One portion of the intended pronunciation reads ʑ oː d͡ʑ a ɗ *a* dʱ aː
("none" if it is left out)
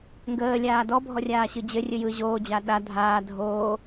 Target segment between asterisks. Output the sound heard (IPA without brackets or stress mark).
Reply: a